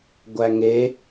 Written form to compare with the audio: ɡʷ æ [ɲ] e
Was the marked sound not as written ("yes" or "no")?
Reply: yes